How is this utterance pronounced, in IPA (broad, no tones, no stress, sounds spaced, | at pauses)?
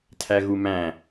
tʰ æ ɣ u m æ̃